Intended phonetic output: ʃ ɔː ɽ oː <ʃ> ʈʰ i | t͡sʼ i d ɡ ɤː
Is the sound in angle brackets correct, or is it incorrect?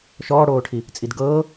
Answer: incorrect